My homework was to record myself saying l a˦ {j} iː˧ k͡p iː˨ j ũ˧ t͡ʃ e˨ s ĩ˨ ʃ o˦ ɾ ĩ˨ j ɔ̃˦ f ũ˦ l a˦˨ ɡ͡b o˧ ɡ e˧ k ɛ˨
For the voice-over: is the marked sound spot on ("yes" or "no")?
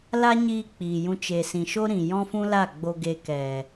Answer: no